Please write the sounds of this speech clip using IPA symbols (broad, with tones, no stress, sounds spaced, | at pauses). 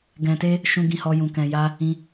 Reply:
ɡ ɛ̃˧ t e˦ | ʃ ũ˧ ɡ ĩ˧ h ɔ˧ j ũ˧ k ɛ̃˧ j a˦ | ĩ˧